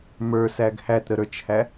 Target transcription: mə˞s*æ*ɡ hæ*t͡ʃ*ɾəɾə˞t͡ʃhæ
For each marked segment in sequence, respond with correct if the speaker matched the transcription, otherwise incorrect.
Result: correct, incorrect

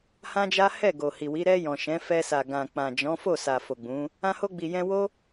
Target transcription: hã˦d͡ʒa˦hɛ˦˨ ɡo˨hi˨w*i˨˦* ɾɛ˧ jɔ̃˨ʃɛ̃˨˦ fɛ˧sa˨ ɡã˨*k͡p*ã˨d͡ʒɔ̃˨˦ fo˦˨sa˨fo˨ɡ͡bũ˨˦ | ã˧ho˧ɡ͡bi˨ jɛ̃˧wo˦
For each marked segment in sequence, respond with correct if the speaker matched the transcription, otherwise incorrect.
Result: correct, correct

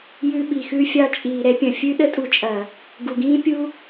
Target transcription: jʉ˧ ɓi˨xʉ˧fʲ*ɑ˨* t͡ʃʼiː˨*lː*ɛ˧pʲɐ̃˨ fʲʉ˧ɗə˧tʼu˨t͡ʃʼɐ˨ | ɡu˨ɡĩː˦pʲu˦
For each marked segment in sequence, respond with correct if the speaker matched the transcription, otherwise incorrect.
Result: incorrect, incorrect

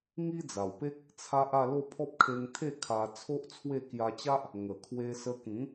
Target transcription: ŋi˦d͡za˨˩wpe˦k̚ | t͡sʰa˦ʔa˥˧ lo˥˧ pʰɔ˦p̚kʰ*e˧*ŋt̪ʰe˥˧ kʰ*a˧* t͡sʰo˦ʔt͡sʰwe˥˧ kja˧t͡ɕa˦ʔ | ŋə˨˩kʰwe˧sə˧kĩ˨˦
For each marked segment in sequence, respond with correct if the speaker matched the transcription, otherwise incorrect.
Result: correct, correct

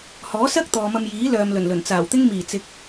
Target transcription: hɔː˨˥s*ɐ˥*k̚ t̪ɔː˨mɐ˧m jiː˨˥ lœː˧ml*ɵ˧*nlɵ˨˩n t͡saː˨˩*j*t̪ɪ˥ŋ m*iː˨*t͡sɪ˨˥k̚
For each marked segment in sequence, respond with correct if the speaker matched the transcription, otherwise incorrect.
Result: correct, incorrect, incorrect, incorrect

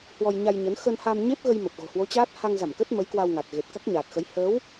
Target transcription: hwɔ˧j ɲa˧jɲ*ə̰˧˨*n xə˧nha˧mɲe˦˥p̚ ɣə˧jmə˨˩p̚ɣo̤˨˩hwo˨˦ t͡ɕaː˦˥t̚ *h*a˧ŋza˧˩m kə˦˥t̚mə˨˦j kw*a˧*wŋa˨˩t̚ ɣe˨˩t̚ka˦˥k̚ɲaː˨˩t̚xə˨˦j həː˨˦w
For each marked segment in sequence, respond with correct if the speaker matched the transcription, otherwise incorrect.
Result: incorrect, correct, correct

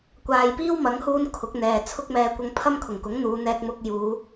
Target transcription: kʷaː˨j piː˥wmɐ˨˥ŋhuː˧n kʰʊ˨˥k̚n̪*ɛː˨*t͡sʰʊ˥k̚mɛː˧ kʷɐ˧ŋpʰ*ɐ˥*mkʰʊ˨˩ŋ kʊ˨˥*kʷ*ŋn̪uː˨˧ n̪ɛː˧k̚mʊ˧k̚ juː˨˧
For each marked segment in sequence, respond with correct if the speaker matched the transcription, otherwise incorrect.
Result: correct, correct, incorrect

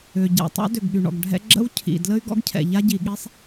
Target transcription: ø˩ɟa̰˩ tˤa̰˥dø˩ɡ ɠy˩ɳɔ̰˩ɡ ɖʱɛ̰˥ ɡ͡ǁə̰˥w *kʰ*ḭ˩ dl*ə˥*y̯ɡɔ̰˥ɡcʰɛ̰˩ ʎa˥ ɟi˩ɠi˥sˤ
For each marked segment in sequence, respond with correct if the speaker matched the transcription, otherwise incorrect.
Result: incorrect, correct

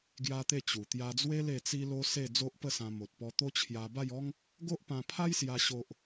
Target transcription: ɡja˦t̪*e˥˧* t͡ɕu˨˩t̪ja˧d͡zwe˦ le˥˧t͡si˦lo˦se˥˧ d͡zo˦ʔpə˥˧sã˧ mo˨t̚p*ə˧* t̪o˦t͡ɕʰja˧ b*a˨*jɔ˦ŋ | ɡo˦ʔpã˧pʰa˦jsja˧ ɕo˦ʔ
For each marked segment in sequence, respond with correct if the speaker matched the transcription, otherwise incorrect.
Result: correct, incorrect, incorrect

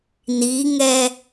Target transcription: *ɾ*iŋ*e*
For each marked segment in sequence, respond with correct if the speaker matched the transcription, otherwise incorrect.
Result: incorrect, incorrect

